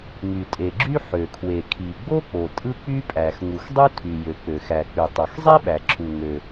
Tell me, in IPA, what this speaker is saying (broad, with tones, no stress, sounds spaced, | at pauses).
ŋ y˩ tʼ e˩ ɡ͡ǁ y˥ ħ ø˩ kʰ w e˩ kʰ i˩ ɡ͡b o˥ k͡p o˩ tʼ ɯ˥ k͡p y˥ pʼ æ˩ x ŋ u˩ x dˤ u˥ tʰ y˩ j ø˩ k͡p ø˩ x æ˩ k͡p y˩ tˤ o˩ x zˤ e˥ ɓ æ˩ ǁʰ u˩ ŋ ø˩